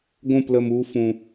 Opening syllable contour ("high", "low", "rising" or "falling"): falling